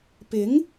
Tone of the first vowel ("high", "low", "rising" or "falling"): rising